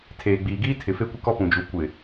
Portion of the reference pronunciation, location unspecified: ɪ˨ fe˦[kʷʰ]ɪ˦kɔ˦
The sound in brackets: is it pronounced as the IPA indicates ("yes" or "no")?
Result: no